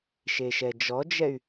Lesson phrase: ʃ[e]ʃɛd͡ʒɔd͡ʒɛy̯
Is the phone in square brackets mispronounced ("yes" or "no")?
no